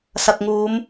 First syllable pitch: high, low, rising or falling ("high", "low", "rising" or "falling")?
low